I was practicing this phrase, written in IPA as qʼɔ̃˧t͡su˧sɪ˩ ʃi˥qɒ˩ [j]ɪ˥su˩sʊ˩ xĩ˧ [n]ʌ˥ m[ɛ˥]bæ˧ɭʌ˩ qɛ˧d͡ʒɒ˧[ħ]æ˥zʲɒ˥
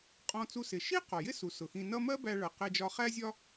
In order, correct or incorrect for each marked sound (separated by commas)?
correct, correct, incorrect, incorrect